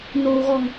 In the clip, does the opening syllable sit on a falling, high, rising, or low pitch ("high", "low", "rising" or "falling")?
low